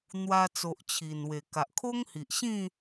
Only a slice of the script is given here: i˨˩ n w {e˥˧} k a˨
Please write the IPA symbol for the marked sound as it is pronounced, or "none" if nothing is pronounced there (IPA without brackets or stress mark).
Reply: e˨˩